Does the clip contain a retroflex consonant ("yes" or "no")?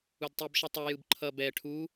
yes